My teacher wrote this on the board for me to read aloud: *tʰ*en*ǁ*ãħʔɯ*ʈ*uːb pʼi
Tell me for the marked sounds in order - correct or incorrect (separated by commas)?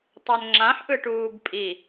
incorrect, incorrect, correct